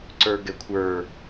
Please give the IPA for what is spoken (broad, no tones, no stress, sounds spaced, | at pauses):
ǀ ə˞ ɡ ɛ kʷʰ ə˞